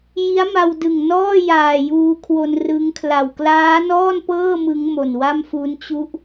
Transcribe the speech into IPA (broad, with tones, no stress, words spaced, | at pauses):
ji˦˥a̯ma˧wdɯ˨˩ŋnɔː˥˩ jaː˨˩juː˧kʰwo˧n rɯ˦˥ŋ kʰla˨˩w klaː˦˥nɔː˥˩npɤː˥˩ mɯ˦˥ŋmo˨˩n wa˥˩mfu˦˥nt͡ɕu˥˩ʔ